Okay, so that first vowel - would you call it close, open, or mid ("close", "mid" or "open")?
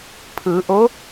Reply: close